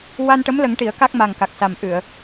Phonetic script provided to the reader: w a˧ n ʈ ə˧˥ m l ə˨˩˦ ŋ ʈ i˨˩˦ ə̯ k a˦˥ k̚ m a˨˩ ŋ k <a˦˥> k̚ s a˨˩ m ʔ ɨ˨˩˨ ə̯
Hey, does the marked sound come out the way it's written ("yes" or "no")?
no